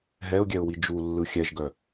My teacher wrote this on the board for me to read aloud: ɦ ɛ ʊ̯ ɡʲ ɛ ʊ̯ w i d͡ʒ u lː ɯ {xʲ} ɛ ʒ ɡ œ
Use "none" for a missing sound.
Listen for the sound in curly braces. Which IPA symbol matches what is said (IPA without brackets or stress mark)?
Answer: xʲ